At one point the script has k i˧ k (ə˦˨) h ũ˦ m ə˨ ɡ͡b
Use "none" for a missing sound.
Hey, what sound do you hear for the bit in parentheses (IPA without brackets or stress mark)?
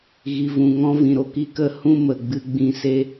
ə˦˨